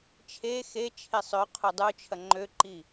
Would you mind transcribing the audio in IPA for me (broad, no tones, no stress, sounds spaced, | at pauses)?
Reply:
t͡ʃʰ e x e t͡ʃʰ e sˤ ø qʰ u dˤ u t͡ʃʰ ɐ ŋ͡ǃ ø ǃ i